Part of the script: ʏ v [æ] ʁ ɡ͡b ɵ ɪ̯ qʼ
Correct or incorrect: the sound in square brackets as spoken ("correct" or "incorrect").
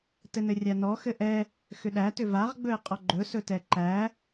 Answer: incorrect